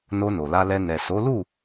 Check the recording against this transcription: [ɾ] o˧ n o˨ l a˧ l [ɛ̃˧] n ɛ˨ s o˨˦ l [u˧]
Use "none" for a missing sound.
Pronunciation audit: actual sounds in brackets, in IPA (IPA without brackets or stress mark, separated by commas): n, ɛ˧, u˦˨